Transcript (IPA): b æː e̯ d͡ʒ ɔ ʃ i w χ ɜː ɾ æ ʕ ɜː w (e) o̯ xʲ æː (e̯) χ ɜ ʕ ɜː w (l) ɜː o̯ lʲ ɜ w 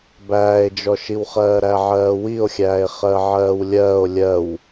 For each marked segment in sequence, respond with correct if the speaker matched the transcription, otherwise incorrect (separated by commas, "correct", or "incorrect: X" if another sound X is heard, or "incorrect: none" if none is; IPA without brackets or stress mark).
incorrect: i, correct, incorrect: lʲ